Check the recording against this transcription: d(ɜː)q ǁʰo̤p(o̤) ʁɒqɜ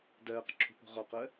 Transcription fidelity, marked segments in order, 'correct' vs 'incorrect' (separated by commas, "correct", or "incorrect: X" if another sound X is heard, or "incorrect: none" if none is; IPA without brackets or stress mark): correct, correct